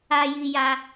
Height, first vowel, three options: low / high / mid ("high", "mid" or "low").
low